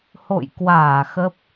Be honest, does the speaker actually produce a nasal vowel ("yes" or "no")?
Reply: no